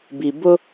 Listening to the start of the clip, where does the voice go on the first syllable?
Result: low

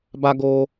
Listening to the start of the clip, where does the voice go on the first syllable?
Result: high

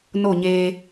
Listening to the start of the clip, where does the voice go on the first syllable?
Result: falling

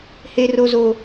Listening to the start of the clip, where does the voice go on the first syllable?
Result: high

